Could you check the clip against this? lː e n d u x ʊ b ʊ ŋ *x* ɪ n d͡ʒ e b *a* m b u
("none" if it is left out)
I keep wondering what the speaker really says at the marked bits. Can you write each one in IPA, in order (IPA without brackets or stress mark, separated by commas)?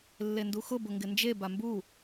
ɡ, a